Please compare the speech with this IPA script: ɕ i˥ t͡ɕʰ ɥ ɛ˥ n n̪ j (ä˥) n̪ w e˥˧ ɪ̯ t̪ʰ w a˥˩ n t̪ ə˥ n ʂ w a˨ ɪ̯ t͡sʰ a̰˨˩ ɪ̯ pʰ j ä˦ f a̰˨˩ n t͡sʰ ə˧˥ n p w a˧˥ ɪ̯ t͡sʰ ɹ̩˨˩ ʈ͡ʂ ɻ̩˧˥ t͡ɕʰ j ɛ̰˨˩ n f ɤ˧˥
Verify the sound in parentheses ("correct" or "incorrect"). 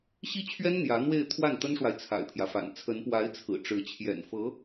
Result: incorrect